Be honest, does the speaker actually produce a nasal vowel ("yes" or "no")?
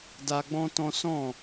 yes